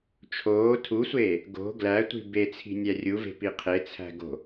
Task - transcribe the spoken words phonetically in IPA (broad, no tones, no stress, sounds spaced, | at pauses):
t͡ʃʰ oː tʰ u sʷ eː | ɡ o̤ ɡ l æ tʷ i̤ b e t͡sʰ i̤ nʲ æ rʲ u v e̤ p i qʰ e t͡sʰ æ̤ ɡ o̤